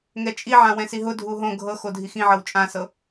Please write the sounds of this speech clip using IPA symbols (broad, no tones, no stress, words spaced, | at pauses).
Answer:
ŋɛt͡ʃʼiʕã wɛ̃siɦʊ dʱuɦõ ɡʱɤ xodʱixĩʕɤw t͡ʃʼãsɤ